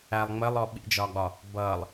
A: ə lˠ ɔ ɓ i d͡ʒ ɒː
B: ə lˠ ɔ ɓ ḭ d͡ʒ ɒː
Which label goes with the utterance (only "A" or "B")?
B